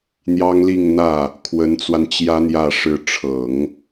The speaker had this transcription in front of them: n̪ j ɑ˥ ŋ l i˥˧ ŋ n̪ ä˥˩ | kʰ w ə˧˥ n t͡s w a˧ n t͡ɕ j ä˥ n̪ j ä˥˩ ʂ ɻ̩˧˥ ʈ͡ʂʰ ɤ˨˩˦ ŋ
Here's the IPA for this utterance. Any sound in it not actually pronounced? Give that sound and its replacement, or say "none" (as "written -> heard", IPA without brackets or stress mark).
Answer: none